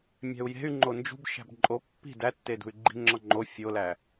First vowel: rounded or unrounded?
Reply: unrounded